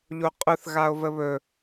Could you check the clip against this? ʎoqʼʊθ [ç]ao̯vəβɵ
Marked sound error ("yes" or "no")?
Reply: yes